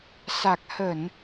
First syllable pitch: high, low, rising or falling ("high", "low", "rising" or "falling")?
low